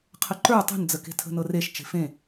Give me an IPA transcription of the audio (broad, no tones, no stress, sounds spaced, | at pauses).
qʰ ə ǃ ə˞ tˤ ṳ n d͡z ə k e̤ tʰ ə̤ n ɤ r e ʃ t͡ʃ e̤ f ẽ